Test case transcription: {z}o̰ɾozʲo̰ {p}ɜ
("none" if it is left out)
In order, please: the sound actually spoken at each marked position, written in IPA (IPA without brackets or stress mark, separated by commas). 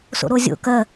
s, k